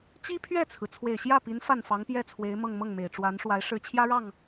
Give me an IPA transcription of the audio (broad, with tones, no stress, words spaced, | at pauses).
t͡ɕi˥pʰɥɛ˥˩t͡sʰɹ̩˩ t͡sʰwe˨˩ɪ̯ ɕjä˥˩pi˧˥n fa˥˩nfɑ˧˥ŋpjɛ˥˩ t͡sʰwe˧˥ɪ̯mɤ˥˧ŋ mɤ˥˩ŋme˨˩ɪ̯ʈ͡ʂwa˧˥nʂwa˧˥ɪ̯ ʂɻ̩˧˥t͡ɕʰjä˥ɻɑ˥˩ŋ